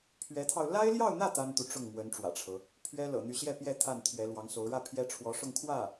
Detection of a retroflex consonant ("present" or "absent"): present